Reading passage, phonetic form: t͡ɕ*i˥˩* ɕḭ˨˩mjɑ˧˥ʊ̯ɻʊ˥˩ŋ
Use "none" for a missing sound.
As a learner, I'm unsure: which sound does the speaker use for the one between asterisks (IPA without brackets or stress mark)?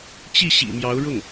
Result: i˥˩